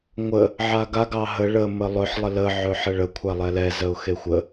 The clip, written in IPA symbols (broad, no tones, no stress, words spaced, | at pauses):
ŋʷə | ʕaɡa ɡɑɦə ɭə məlˠɵħ lˠələ ʕɵħəɭə kʷʰalˠɛlɛ zəʊ̯xexʷə